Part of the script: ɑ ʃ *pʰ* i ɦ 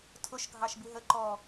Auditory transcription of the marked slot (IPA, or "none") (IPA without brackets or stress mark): b